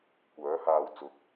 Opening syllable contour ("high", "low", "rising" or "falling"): rising